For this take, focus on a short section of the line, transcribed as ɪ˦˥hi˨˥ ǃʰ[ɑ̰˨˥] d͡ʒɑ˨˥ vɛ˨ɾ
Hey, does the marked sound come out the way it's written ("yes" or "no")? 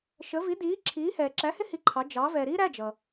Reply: no